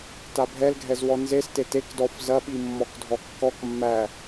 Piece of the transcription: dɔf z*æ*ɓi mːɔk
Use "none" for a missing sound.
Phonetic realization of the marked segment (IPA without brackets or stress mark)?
ɐ